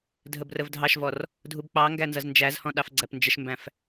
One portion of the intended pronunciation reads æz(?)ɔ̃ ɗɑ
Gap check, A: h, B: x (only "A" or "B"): A